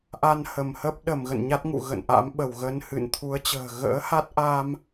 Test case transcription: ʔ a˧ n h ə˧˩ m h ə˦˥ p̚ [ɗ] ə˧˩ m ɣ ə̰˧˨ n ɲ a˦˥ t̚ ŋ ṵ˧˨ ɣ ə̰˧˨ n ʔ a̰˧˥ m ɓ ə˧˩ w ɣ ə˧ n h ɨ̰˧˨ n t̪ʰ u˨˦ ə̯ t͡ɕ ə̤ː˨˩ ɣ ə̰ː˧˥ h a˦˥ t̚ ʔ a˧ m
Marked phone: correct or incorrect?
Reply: correct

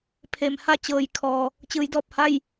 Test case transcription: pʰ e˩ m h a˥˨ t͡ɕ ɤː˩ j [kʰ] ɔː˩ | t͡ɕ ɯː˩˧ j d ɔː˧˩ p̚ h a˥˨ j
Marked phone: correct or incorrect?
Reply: correct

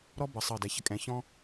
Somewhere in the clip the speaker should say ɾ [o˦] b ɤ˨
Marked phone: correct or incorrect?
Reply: incorrect: ɔ˦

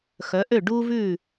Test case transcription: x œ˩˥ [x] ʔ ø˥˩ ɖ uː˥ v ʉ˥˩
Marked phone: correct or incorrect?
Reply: incorrect: none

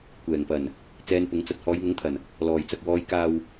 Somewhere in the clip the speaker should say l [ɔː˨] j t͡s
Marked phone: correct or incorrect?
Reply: correct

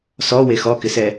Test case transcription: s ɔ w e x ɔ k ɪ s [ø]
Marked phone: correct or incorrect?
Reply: incorrect: ɛ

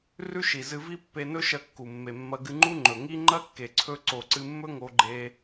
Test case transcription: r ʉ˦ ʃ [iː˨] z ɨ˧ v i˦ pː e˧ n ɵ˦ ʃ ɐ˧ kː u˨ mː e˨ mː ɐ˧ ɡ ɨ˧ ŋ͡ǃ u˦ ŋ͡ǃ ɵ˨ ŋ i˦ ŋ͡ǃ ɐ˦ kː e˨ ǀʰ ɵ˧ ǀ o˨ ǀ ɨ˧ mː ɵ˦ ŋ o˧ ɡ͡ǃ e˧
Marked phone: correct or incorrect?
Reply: incorrect: i˨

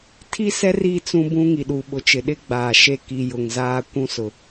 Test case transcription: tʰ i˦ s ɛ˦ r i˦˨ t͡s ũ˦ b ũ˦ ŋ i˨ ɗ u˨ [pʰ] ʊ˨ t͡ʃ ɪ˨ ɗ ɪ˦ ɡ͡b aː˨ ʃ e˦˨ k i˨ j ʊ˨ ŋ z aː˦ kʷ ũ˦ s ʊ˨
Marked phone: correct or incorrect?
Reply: incorrect: ɓ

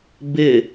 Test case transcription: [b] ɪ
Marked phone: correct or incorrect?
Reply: correct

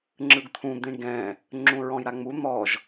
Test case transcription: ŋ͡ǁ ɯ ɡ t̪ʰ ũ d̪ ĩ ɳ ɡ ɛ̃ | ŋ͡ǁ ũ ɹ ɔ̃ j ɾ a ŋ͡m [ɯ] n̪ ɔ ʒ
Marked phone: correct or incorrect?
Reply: incorrect: u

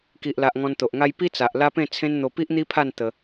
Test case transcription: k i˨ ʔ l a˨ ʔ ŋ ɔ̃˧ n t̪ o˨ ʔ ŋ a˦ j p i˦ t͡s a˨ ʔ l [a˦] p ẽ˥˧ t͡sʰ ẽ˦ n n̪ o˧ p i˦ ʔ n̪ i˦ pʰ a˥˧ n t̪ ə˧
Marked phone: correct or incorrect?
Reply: correct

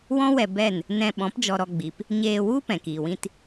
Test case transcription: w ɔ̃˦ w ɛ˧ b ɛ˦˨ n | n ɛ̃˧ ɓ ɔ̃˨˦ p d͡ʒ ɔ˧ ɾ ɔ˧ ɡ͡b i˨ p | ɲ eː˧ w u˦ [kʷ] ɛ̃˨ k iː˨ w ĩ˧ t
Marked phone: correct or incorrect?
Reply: incorrect: p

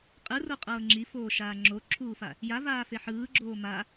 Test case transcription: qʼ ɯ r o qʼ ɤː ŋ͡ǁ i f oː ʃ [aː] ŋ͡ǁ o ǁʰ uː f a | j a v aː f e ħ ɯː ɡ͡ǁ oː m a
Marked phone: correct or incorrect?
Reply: correct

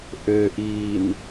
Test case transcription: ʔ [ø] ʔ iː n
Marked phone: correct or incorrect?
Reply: correct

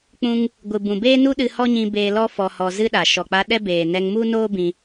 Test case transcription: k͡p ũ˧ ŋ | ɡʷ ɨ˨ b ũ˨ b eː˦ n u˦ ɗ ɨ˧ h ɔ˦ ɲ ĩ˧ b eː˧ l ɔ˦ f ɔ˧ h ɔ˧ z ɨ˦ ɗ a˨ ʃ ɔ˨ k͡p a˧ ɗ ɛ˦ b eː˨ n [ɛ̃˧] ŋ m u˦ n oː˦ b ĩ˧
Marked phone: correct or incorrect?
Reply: incorrect: ɛ˧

